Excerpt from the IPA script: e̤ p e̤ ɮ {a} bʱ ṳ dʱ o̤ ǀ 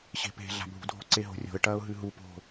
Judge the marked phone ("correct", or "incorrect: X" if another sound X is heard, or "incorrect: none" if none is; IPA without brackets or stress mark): incorrect: a̤